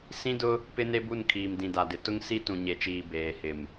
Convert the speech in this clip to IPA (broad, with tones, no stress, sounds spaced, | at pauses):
s ĩ˦ d ʊ˦ | p ɪ˦ n e˦ b u˦˨ n kʰ iː˨ m d ĩ˨ d a˨ d ɪ˨ t ʊ˦ ŋ s i˦ t ũ˨ ɲ e˨ t͡ʃ iː˨ b eː˨ h ɪ˨ m